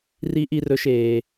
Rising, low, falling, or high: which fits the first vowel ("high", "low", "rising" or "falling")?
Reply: high